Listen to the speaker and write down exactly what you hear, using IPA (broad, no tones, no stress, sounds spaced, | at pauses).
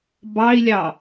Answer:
b ɑ i̯ lʲ ɑ